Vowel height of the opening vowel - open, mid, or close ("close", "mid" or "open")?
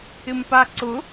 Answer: close